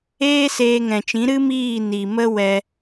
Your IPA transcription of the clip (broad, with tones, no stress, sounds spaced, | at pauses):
eː˦ s eː˧ ŋ ɛ̃˨ t͡ʃ ĩ˨˦ ɾ ɨ˦ m iː˦˨ n i˨ m ə˦ w ɛ˧